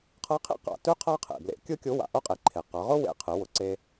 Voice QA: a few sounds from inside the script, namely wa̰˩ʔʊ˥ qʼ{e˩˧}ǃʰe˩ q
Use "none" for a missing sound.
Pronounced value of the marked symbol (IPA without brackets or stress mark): e˩˧